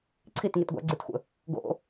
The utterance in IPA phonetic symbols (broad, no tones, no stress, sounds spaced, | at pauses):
ǀʰ i t ŋ i t ɡʷ a̰ ɡ͡ǀ ʉ t xʷ ə̰ | ɡ o̰